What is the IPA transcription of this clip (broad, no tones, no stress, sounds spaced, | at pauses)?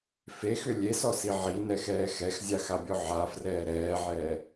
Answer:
f e x ʏ lʲ e s ɔ s i ʕ i n ɛ x ɛː x ɛ x zʲ a x a bʲ ɔ ʕ a f r ɛː ɾ ɛː ʕ ɛː